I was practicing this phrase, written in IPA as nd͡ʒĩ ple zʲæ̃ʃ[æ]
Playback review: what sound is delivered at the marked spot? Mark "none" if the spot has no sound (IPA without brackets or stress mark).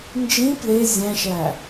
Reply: æ